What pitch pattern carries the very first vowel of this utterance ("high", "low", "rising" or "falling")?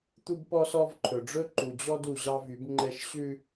high